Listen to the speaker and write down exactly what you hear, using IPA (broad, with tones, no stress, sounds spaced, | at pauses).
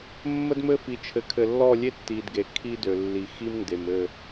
mː ə˦ d m ɘ˦ f i˨ t͡ʃʰ ɘ˨ kʰ ɘ˨ lː ɔ˦˨ lʲ e˦ tː i˨ d ɡ e˨ kʰ i˦ d ø˨ lː i˨ x i˦ m n d e˨ m ɘ˦˨